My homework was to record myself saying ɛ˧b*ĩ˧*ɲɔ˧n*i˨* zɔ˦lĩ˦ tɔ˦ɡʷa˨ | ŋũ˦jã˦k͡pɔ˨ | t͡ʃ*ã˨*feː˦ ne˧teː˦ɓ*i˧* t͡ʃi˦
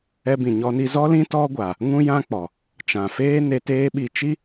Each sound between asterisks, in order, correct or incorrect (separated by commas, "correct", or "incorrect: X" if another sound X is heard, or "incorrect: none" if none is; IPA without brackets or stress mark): incorrect: ĩ˨, incorrect: i˧, correct, correct